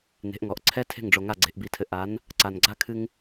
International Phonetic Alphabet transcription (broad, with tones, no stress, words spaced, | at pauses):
ne̤˨˦ʔŋɔ˨ʔ ǀʰɛ˦tʰe̤˦˨ŋɖ͡ʐo˨ŋa˦˨ ɡ͡ǀe̤˧ʔbi˧tʰɘ˧ ʔa˨˦n | ǀa˨nɡ͡ǀa˦ kʰɨ˦ŋ